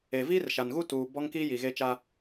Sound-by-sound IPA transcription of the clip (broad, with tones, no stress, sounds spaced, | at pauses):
e˨ v iː˦ r ʃ a˨ n ɣ u˦ t uː˨ b ɔ˦ ŋ k iː˦ j i˨ ɣ e˦ t͡ʃ a˦